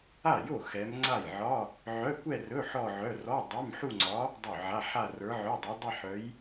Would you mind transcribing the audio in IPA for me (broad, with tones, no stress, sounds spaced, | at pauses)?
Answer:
a˥˩ j o˥˩ x ɛ˧˥ m ŋ͡ǀ a˥˩ j ʕ ɒ˧˥˧ | ʕ œ˧˥˧ kʷ ɛ˥˧ r ɵ˧˥˧ ħ ɔ˥˧ ʕ œ˧˥˧ r ɔ˧˥˧ dˤ ɛ˧˥˧ m ħ u˥˧ ŋ͡ǀ ɒ˧˥ | dˤ ɵ˥˩ ʕ a˧˥˧ ħ a˥˧ r ə˞˧˥ ʕ œ˧˥˧ dˤ o˧˥ dˤ ɛ˥˧ ħ œ˧˥ j